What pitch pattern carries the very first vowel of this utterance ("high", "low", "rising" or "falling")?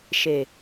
low